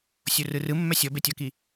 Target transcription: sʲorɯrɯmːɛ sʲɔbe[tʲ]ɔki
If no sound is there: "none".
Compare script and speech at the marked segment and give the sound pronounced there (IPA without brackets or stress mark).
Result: tʲ